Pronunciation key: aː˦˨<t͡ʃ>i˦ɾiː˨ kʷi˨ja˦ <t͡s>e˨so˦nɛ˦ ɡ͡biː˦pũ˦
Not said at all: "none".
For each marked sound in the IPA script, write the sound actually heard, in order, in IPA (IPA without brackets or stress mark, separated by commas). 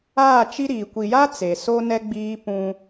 t͡ʃ, t͡s